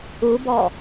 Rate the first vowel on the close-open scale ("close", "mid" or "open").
close